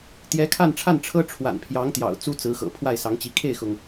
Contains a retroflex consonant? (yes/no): yes